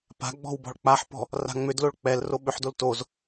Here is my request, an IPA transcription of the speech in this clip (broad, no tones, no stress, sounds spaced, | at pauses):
p a̤ ɡ͡b ɔ̤ w b ɔ̤ ɭ k͡p a ħ p ɔ̤ | r a̤ ŋ͡m ʏ d l o ɭ k͡p ɛ l r o ɓ ʏ ħ d o l t o z